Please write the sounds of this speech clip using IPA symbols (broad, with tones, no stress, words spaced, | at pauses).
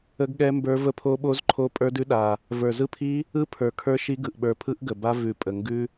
ə˦˥ɡɠɛ˦˥mbə˞˦˥ və˦˥pʰo˦˥ɓo˦˥zǃʰo˦˥ pʼə˞˦˥dʉ˦˥ɗa˨˩ | və˞˨˩zɯ˦˥pʰi˦˥ | ɯ˦˥ pʰə˞˨˩ kʰə˞˦˥ʃi˦˥ɡɯ˨˩ʔ ɓə˞˨˩pʰɯ˦˥ʔ ɡə˨˩ba˦˥ vʉ˨˩ pʼə˨˩ŋɡʉ˦˥